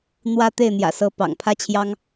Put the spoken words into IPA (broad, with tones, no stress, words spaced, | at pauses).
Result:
n̪wä˥ t̪e˥˩ɪ̯n̪jä̰˨˩sɤ˧˥ pɑ̰˨˩ŋpʰä˥t͡ɕʰjɑ˥ŋ